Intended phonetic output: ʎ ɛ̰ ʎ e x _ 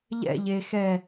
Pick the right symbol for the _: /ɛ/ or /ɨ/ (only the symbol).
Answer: ɛ